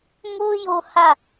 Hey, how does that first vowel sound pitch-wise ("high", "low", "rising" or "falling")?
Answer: high